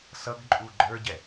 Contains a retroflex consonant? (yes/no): no